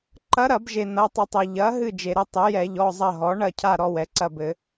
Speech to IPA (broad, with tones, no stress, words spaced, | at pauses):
ǃɐ˧˥ɾɐ˧˩˧bʒe˩ n̪ɐ˩˧˩tˤɘ˧˩˧tˤɘ˩ ʎɐ˩˥ ɦɨ˦˨d͡ʒe˩ɾɘ˦˨ tˤe˩˥jɛ˧˩˧ ʎɔ˩˧˩zˤɐ˦˨ɦɔ˩˥ ɳɐ˦˨cʰa˦˨ ɾɔ˦˨wɛ˩ǀɐ˦˨bɘ˧˩˧